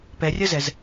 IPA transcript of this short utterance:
pɛrʲɜzɛz

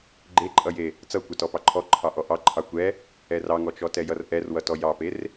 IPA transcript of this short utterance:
ɡ͡ǃeǃʼʌje | t͡sʌkʷɛtɔ pɑǃʰɔ ǃʰɑʔɔʔɑ ǃʰɑkʷɛ | ɛrɑŋɔ t͡ʃɔtɛjʌrʔɛr wʌtɔjɑper

